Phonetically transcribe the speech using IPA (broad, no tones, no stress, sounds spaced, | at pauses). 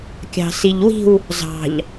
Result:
kʲ ɑ̤ s i ʎ w i̤ w | z ɑ̤ ʎ